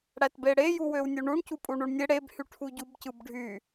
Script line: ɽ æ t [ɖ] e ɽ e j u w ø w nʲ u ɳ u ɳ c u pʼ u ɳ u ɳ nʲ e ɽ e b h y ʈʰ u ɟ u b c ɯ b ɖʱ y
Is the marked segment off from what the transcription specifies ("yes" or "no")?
yes